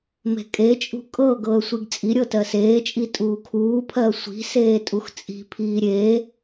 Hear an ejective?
yes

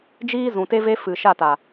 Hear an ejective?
no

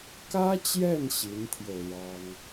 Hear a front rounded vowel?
no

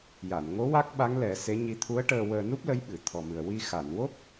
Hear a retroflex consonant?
yes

